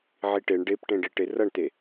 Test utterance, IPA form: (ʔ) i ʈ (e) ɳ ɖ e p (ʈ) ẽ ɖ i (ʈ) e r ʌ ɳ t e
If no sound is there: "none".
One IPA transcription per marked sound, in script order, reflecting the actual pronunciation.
ʕ, e, ʈ, ʈ

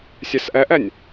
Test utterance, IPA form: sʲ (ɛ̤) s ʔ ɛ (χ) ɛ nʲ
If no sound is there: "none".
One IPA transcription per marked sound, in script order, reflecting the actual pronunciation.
ɛ, ʔ

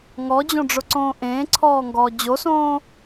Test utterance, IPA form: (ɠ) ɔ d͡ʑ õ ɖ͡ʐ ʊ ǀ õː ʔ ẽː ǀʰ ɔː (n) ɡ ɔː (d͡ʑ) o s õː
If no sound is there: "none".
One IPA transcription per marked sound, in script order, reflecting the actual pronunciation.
ŋ, ŋ, d͡ʑ

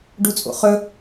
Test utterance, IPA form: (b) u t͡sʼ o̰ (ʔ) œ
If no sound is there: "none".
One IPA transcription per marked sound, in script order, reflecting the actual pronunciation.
ɖ, χ

